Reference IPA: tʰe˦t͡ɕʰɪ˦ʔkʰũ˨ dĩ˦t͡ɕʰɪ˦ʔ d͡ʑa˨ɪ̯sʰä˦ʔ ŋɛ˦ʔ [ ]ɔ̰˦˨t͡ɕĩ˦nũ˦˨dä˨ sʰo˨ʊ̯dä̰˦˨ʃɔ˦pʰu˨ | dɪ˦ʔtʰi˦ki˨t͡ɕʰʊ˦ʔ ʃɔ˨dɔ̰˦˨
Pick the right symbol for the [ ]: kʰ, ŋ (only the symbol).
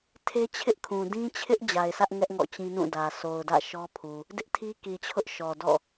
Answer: ŋ